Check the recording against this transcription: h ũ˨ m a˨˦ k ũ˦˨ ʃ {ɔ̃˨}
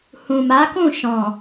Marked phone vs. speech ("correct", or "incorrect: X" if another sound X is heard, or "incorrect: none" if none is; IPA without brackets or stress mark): correct